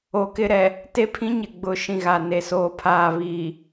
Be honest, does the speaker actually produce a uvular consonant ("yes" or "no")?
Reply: no